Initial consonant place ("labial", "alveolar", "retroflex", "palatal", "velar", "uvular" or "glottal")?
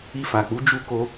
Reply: labial